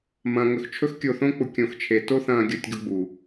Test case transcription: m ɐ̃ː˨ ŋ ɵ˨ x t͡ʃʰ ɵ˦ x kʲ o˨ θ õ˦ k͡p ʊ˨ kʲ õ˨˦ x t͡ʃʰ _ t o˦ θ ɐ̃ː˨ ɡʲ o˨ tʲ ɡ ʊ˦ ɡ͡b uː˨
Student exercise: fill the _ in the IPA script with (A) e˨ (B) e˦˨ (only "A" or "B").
A